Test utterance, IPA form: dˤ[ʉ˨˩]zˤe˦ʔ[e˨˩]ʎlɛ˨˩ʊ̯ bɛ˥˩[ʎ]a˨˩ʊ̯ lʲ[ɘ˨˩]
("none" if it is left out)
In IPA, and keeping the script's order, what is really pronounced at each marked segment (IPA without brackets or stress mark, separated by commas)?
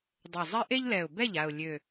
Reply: ø˨˩, e˦, ʎ, ø˨˩